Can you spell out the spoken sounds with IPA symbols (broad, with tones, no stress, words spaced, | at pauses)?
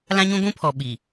lã˦ɲũ˦ɡʷũ˦pʰɔ˨ ɓi˨